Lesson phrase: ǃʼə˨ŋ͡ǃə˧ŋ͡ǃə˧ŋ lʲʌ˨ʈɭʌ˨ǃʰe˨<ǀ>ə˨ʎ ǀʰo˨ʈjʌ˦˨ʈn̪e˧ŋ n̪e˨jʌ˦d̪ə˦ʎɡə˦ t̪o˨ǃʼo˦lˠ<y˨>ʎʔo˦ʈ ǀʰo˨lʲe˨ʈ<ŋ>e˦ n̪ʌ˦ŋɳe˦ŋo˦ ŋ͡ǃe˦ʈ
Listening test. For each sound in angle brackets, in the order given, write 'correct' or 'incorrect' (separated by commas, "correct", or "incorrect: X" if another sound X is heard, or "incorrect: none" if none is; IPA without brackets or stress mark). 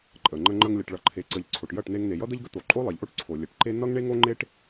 correct, incorrect: e˨, incorrect: ǃ